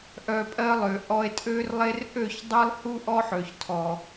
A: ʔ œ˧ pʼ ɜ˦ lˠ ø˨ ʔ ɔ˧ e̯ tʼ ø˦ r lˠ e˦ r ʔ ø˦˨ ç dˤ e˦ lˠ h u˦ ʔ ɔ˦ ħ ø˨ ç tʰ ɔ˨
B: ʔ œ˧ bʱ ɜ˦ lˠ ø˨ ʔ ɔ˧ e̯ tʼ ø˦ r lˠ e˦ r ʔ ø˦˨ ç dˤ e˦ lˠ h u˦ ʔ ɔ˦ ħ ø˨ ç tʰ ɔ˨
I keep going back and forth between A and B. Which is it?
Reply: A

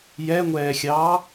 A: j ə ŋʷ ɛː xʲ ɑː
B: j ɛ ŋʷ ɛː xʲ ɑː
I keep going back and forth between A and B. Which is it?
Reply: B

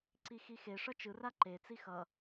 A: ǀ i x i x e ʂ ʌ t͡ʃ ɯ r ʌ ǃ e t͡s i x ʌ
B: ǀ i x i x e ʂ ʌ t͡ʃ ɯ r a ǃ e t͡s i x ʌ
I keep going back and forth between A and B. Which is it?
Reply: B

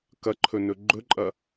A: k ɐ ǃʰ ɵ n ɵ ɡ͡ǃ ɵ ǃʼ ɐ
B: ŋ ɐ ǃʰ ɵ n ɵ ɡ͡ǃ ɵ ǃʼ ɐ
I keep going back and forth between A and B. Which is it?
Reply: A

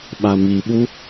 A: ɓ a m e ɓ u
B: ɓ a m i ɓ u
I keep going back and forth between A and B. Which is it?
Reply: B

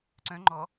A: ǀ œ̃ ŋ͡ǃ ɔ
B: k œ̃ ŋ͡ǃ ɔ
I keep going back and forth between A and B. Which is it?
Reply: A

